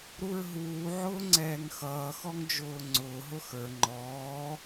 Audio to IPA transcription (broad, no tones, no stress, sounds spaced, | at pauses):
ɾ u ɹ ɦ uː ʕ ʊː ŋ͡ǀ ɛː ŋ x ʌː x ɔ ŋ d͡ʒ ʊː ŋ͡ǀ ʊː ɦ ʊ x ə˞ ŋ͡ǃ ɔː